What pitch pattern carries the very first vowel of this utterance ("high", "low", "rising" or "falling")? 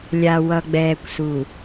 low